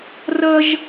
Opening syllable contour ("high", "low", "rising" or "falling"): high